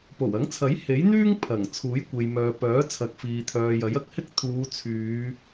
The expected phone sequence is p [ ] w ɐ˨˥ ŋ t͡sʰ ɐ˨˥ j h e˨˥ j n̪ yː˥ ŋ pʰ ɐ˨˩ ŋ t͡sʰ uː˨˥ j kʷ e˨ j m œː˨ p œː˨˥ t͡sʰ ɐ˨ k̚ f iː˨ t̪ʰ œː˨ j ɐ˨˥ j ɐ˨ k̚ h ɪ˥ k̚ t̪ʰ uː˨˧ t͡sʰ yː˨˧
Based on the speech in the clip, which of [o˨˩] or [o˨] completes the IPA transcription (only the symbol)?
o˨˩